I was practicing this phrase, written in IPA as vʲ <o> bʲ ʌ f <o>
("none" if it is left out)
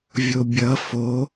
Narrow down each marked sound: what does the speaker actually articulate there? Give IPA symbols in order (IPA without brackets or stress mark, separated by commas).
o, o